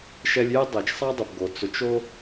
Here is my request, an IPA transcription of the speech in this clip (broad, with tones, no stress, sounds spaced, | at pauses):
ʃ ɛ˧ lʲ j ɛ˦ dˤ ɛ˨ t͡ʃ sˤ a˦ dˤ e˨ p ɡ o˨ t͡s ʊ˨˦ t͡ʃ o˦